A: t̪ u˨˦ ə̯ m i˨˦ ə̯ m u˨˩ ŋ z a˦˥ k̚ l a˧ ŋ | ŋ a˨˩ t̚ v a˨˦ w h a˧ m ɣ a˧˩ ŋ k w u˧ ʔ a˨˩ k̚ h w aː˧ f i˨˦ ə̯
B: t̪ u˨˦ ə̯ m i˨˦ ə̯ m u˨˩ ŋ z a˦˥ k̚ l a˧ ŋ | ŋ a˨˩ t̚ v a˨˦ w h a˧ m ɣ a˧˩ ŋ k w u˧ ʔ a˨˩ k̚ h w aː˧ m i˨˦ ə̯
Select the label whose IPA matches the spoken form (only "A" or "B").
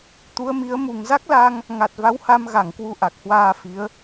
A